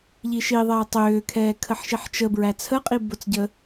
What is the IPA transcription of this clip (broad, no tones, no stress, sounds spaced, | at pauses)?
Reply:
ʎ i ʃ i ðˤ ɛː tˤ ʏː kʰ ɛː kʰ ə ħ ʃ i ħ t͡ʃ ə b ɹ æ t͡sʰ ə qʼ i b ʊ t͡s ɟ ə